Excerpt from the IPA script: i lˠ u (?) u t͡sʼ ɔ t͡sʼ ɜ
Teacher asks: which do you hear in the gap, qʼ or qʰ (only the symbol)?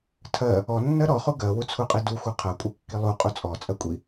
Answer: qʼ